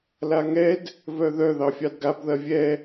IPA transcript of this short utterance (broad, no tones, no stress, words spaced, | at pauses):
laŋɛd | vœðœ ðɑfʲɑdɡab ðɐvʲɛ